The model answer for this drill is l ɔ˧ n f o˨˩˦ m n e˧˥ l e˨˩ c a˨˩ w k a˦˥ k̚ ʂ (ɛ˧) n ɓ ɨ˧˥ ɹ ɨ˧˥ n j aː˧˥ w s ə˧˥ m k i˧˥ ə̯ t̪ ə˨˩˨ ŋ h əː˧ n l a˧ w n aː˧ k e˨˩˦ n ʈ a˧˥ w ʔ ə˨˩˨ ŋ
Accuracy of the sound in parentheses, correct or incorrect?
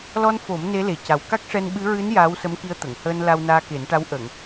correct